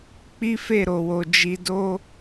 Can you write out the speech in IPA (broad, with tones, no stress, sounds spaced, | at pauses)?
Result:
k͡p i˦ f e˦˨ ɾ o˨ w o˨ d͡ʒ i˧ d o˦